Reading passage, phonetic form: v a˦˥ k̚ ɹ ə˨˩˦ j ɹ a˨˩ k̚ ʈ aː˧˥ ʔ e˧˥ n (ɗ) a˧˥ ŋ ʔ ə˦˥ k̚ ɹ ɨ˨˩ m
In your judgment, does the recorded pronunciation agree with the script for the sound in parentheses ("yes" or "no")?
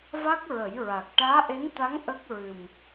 no